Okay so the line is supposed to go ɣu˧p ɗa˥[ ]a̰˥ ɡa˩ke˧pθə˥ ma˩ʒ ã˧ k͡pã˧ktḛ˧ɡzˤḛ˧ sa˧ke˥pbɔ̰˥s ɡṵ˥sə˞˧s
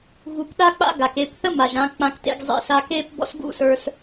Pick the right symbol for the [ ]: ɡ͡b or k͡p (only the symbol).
k͡p